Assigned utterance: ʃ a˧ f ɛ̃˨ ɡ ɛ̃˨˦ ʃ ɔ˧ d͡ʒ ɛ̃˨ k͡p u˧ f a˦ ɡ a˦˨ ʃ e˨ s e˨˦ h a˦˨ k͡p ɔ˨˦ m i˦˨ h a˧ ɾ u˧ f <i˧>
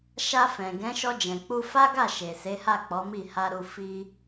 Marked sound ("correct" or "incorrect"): correct